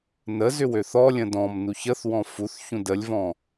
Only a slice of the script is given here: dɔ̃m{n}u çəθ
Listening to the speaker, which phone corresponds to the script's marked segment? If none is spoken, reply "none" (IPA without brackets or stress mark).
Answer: n